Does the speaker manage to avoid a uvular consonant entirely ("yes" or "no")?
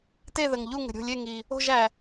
yes